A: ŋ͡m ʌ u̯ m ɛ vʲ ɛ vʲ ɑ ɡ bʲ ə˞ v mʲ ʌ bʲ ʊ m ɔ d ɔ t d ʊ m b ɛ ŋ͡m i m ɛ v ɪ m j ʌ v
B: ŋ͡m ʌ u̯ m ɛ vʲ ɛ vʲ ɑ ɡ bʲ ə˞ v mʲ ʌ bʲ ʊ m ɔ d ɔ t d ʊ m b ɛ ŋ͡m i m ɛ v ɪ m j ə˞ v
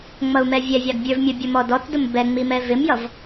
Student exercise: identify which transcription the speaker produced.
A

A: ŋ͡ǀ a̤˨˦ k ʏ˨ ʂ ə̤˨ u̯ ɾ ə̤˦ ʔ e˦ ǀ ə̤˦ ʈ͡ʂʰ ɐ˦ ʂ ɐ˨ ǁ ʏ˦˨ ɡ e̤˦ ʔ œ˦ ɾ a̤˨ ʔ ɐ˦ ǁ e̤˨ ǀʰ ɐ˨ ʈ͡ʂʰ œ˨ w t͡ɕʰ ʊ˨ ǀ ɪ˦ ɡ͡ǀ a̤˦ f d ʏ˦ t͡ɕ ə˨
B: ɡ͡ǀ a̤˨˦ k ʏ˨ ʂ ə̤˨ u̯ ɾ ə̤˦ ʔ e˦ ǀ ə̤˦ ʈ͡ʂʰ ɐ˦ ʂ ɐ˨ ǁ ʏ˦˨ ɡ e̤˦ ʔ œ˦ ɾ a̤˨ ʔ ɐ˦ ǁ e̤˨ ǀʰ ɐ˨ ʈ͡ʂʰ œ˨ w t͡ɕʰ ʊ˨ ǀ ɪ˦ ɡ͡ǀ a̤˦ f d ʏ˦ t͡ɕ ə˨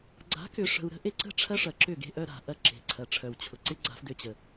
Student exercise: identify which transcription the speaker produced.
B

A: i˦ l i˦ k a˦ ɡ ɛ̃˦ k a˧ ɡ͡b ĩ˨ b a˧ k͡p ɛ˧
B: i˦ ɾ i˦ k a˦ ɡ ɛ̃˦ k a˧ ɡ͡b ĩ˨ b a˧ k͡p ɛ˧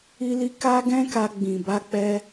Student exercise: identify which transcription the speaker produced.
A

